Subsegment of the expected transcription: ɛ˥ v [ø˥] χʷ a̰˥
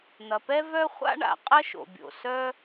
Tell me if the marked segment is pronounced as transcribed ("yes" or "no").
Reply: no